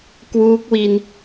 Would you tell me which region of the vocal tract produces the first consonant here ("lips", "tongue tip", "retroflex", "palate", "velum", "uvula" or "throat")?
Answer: velum